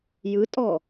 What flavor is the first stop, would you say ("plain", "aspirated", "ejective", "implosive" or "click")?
ejective